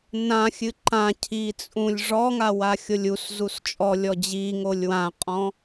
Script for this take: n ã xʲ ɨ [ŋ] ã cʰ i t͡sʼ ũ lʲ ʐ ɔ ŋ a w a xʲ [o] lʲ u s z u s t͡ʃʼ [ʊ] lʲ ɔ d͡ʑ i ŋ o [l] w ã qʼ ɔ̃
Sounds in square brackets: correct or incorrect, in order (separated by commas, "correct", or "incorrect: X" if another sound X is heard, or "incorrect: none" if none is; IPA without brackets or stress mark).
incorrect: ǃ, correct, incorrect: ɔ, incorrect: lʲ